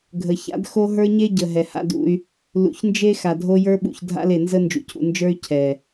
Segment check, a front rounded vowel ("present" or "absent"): present